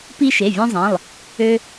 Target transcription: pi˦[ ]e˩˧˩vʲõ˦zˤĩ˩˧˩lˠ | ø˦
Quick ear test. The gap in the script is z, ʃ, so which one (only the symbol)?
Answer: ʃ